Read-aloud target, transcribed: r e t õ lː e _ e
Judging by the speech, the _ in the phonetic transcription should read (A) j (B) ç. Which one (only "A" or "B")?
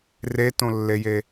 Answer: A